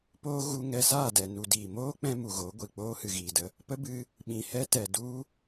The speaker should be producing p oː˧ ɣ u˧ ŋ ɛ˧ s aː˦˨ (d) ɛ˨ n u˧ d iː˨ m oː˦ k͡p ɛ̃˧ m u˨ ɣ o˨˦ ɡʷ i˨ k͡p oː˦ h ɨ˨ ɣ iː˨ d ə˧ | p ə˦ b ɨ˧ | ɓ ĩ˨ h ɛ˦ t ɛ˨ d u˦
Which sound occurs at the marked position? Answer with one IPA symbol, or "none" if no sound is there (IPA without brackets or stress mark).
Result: d